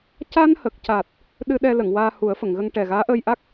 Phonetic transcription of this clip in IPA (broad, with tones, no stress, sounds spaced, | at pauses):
c a˧ n h ə˨˩ k̚ c a˨˩ t̚ | ɗ ɨ˧ ɗ ɛ˧ l ə˨˩˨ ŋ w aː˧ h u˨˩˦ ə̯ f ə˨˩˨ ŋ ɣ ə˧ ŋ ʈ ɛ˨˩ ɣ aː˧˥ ʔ əː˧ j ʔ a˦˥ k̚